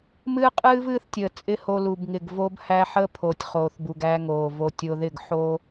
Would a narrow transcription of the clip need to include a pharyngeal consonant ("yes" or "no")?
yes